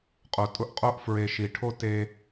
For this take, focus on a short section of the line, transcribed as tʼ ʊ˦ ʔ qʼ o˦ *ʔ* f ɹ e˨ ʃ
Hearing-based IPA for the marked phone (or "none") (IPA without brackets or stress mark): ʔ